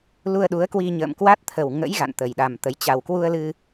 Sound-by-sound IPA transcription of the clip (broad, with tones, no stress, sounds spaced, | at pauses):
l u˧ ə̯ ɗ u˨˦ ə̯ k w i˧ ɲ ə̰ː˧˨ m k w a˦˥ t̚ t̪ʰ ə˨˩ w ŋ ə̰˧˥ j ɣ a̰˧˨ n t̪ ə˨˩ j ɗ a˨˩ m t̪ ə˨˦ j t͡ɕ a˨˩ w k w u˧ ə̯ l ɨ˧